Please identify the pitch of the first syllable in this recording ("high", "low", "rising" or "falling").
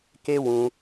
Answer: high